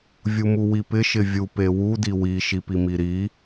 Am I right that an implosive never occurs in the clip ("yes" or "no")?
yes